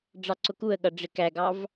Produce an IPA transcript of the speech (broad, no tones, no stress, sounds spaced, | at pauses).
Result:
ɖ͡ʐ ɑ ǀ ʊ k u ə̯ ɠ ʌ ɖ͡ʐ ɪ k æ ɡ ɑ v